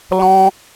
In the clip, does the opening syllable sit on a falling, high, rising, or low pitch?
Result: high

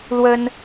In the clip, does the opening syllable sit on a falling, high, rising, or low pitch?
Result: high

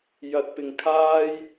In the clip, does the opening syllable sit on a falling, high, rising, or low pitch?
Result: rising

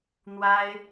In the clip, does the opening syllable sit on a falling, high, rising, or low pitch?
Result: high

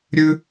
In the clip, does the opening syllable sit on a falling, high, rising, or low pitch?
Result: high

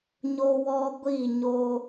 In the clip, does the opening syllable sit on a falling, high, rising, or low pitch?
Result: high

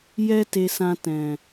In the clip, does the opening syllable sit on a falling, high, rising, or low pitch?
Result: high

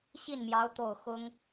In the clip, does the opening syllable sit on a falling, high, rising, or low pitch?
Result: falling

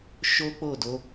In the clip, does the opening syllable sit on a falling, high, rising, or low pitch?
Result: high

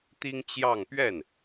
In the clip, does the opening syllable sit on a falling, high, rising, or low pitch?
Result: high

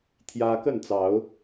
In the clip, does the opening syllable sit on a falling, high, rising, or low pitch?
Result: high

